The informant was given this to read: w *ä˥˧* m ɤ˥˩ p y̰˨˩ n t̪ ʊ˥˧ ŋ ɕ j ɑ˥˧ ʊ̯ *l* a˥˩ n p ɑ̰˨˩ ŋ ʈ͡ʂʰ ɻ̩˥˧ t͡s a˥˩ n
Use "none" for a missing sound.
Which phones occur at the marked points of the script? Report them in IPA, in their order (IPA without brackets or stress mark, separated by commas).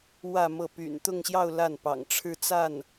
ä˥˧, l